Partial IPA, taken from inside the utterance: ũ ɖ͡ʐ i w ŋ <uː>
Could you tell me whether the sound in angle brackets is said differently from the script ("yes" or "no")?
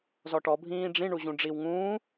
yes